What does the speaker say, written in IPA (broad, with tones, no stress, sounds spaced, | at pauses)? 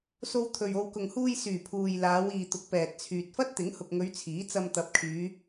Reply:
s o˧ w t̪ʰ ɵ˨ ɥ o˨ w k ʊ˨ ŋ h uː˧ j s yː˨˩ pʰ uː˨ j l aː˨˧ w iː˨ t̪ ʊ˨˥ k̚ p ɛː˨ t̚ t͡sʰ yː˨ t̚ f ɐ˥ t̚ t̪ ɪ˨˥ ŋ h ʊ˨ k̚ ŋ ɵ˨˧ ɥ t͡sʰ iː˨˥ t͡s ɐ˧ m t̪ ɐ˨˥ p̚ kʰ yː˨˧